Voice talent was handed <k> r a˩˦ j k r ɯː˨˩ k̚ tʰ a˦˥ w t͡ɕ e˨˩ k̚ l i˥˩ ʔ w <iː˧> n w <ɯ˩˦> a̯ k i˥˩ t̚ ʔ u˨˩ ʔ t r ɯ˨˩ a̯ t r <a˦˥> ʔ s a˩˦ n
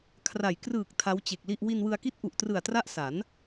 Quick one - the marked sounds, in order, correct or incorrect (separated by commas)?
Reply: incorrect, incorrect, incorrect, correct